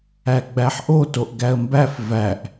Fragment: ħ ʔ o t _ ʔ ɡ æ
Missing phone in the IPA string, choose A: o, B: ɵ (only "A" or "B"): A